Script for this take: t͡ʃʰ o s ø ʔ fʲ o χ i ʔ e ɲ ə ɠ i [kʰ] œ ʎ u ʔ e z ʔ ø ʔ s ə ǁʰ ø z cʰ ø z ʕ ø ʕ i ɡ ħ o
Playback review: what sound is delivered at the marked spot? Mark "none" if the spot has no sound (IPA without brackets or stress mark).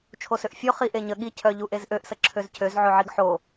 cʰ